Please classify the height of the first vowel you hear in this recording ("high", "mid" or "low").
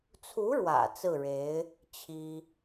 high